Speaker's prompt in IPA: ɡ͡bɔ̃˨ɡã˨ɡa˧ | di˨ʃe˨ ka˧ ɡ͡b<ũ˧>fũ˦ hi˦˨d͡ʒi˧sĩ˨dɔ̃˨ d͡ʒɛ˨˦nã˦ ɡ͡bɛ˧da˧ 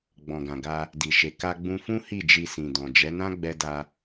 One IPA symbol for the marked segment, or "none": ũ˧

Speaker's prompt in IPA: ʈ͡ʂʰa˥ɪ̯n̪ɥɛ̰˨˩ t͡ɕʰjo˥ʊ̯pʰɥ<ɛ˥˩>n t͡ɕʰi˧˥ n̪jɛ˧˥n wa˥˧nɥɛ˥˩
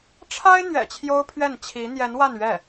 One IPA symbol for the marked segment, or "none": ɛ˥˩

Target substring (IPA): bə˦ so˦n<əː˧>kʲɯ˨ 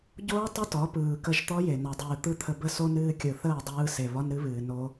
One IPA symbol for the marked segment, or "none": ɨː˧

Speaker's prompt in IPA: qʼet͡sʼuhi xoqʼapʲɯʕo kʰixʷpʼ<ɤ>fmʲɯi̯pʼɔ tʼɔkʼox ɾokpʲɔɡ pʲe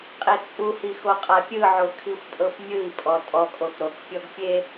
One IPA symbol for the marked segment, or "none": ɤ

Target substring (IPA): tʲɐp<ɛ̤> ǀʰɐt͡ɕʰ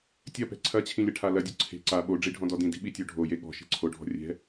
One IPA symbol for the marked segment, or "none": ɛ̤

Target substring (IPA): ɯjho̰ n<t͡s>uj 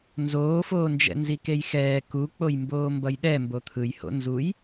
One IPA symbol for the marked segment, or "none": z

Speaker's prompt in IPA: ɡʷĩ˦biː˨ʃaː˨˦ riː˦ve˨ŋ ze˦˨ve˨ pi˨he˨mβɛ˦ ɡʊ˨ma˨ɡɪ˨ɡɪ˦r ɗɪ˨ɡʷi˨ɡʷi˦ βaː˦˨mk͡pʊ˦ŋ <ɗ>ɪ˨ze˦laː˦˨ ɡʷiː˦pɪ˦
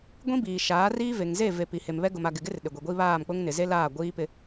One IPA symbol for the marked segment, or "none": n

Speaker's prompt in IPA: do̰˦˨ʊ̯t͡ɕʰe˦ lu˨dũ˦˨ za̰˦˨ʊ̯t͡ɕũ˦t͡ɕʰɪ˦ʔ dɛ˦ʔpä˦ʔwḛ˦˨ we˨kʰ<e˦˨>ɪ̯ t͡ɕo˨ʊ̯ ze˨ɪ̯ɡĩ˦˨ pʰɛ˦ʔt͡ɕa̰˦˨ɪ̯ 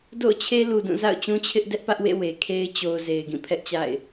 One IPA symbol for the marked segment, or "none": e˦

